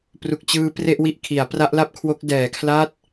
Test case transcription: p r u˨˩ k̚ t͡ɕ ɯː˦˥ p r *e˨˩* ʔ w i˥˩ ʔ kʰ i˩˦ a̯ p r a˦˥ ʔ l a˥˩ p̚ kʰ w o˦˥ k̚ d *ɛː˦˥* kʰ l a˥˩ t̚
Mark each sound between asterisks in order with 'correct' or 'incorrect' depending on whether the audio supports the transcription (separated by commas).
incorrect, incorrect